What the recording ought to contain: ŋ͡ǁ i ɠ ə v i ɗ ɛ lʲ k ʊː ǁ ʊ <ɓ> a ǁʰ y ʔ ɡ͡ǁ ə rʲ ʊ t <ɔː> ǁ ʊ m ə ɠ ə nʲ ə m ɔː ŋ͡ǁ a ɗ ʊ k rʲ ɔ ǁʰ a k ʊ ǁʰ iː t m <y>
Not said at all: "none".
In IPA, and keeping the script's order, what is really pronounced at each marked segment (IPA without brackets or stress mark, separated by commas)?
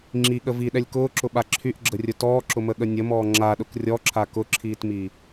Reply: ɓ, ɔː, i